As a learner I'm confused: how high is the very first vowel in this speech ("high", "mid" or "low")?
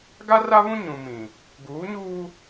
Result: low